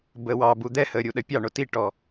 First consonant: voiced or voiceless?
voiced